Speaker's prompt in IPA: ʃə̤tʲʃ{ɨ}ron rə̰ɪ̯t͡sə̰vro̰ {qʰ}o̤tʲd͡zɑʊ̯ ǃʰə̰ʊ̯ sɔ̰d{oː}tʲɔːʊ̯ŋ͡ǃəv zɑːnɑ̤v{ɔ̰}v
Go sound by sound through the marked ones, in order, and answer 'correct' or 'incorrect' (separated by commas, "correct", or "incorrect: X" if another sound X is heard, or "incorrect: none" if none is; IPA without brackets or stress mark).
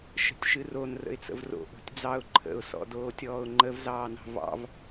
correct, incorrect: ʔ, correct, incorrect: ɑ̰